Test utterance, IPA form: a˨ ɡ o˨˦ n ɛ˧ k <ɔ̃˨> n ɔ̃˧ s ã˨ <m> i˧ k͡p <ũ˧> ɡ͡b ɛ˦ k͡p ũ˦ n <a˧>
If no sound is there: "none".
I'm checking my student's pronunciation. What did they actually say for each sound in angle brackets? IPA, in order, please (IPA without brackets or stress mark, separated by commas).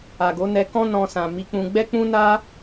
ɔ̃˦, m, ũ˧, a˦